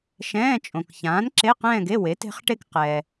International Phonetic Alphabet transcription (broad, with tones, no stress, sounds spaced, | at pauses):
ʃ ɛ̃ː˧˥˧ t͡ʃʼ õ˨ k ç ãː˨˥ n ǁ e˧˥˧ q ɛ̃ː˥˧ ɡ e˧˥˧ w e˨˥ t e̤˦˥ χ ʈ e˥˧ k q ɛ˨